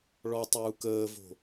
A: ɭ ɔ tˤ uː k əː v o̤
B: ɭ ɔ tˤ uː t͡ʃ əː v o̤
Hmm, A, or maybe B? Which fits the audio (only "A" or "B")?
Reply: A